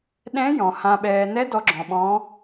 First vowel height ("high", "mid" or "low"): mid